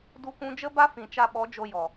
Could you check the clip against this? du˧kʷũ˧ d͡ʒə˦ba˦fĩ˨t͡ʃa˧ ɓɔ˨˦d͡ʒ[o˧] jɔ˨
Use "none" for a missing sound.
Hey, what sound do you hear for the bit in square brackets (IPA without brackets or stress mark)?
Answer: o˧